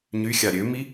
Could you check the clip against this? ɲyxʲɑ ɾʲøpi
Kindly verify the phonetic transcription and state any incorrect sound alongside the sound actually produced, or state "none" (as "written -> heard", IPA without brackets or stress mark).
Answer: p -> m